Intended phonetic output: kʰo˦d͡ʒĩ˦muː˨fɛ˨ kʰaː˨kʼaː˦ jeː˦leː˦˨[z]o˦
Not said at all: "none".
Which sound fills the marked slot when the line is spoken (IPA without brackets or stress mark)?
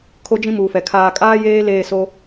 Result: s